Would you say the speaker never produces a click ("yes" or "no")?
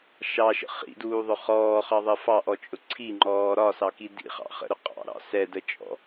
no